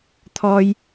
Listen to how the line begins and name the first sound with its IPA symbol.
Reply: t̪ʰ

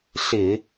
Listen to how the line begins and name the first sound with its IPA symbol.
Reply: ɬ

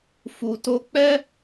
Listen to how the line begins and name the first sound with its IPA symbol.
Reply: f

